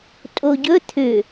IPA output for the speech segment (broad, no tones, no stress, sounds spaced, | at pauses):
tʼ o ɟ ɵ t̪ʰ ʏ